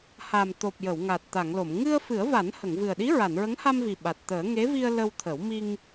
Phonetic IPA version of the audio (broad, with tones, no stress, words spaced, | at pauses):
ha˨˩mt̪o˨˩p̚ jə˨˩˨wŋa˨˩t̚t̪a˨˩˨ŋlo˨˩˨m ŋɨ˧ə̯ fɨ˨˩˦ə̯va˨˩˦n hə˨˩˨ŋvɨ˨˩ə̯ɗi˧˥ ɹa˨˩˨nɹə˧˥ŋha˧mvi˨˩ ɓa˨˩t̚t̪əː˨˩˦ ŋe˧˥vi˧ə̯ lə˧wt̪ʰə˨˩˦w mi˧ŋ